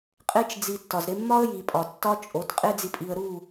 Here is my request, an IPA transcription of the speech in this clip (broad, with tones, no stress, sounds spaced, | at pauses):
qʼ e˧ t͡ʃ d͡z i˨ tː ɒ˨ z ɾ e˧ mː ɒ˦ ə̯ j i˨ pʼ ɒ˨ tː ɒ˧ t͡ʃʼ o˨˦ t qʼ e˧ d͡z i˨ pʼ i˨ ə̯ ɾ u˦˨